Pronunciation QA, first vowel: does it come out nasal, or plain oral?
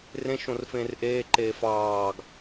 nasal